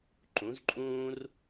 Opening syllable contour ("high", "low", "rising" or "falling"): rising